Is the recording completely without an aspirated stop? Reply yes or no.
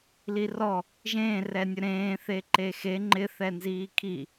no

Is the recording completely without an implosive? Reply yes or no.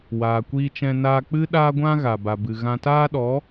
no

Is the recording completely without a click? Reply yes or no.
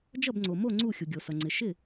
no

